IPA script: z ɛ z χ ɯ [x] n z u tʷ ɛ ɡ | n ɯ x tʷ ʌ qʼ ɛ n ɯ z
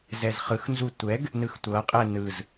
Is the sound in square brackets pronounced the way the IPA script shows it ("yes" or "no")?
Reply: yes